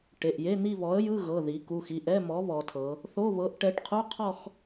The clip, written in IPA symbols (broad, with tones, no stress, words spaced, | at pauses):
ʈe˩˧˩ʔje˧˥˧n̪i˥˧βɔ˨˥ə̯ jɯ˧˥˧ɣɤ˩˧˩ði˩˧ku˩˧˩x i˩˧˩ʔɛ˧˥˧mɔ˨˥ βɔ˩˧tʰɤ˩˧ | θo˧˥˧ βɤ˨˥ʔʈɛ˨˥ʈqʰu˧˥˧qʰɔ˥˧x